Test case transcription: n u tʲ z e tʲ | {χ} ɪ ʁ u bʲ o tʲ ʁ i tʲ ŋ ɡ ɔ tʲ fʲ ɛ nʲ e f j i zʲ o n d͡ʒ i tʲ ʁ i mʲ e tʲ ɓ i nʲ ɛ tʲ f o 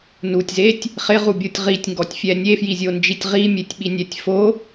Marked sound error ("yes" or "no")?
no